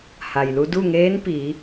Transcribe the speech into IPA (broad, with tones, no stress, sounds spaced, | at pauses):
h a˩ j l u˧ d u˥˨ ŋ eː˧˥ n p i˩˧